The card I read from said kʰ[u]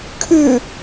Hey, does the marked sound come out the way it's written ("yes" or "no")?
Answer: no